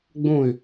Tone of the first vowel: falling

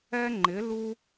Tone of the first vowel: high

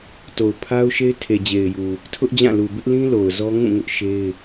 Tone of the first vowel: low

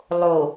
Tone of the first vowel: low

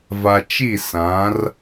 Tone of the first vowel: low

